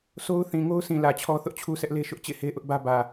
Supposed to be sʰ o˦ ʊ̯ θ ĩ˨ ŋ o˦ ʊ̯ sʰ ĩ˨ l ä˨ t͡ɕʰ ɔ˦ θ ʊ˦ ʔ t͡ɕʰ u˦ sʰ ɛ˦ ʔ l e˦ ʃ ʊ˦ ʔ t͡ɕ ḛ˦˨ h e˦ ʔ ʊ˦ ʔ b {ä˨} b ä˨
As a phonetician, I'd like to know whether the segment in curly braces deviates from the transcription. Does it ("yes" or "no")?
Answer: yes